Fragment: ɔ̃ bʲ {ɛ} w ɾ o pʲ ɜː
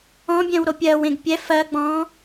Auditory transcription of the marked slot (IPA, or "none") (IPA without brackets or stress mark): ɛ̃